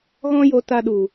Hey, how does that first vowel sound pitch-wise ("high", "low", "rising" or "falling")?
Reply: high